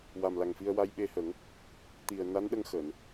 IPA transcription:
w a˨˩ m l a˨˩ ŋ f i˧ ə̯ w a˧ j ɓ e˧ h ə˨˩˦ ŋ | t̪ i˨˩ ə̯ n a˧˥ n ɗ ə˧ ŋ x əː˨˩˨ n

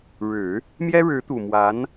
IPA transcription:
ɻ ɻ̩˨˩˦ | m j ɛ˥ ɻ ɻ̩˧˥ t̪ u˨˩ m w a˧˥ n

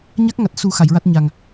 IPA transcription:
ɲ a˦˥ k̚ ŋ a˨˩ t̚ s u˨˩˦ x a˨˩˨ j ɹ a˦˥ t̚ ɲ a˨˩ ŋ

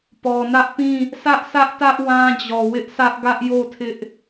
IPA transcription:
p ɔ˨ n ä˦ ʔ p ĩ˦˨ | s ä˦ ʔ s ä˦ ʔ t ä˦ ʔ w ã˦ d͡ʑ ɔ˨ w ɪ˦ ʔ sʰ ä˦ ʔ ɡ ä˦ ʔ j o˦˨ tʰ ɪ˦ ʔ

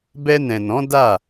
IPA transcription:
b ɛ˧ n ɛ̃˨ n ɔ̃˨˦ d a˦˨

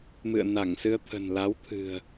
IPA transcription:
m ɨ̰˧˨ ə̯ n a˧˩ ŋ s ɨ˧ ə̯ t̪ʰ ə̤˨˩ n l a˨˦ w t̪ʰ ɨ̤˨˩ ə̯

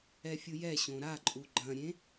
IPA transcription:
ɛ fʲ u j ɛ ɕ õ ɾ a ǃʼ u ɡ͡ǃ ɐ̃ ɾʲ ẽ

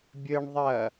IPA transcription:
bʲ ɘ ɳ ðˤ ɐ

